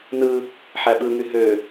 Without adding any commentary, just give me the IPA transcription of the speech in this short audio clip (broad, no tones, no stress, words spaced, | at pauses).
nɯ | ħæɓɯŋy ɦø